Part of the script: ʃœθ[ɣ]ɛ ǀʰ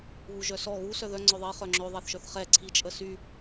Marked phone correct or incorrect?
incorrect